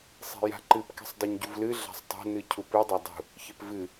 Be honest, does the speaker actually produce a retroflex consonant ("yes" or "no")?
no